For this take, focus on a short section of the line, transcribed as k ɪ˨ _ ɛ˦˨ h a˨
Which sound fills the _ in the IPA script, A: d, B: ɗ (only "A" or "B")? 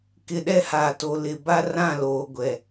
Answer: B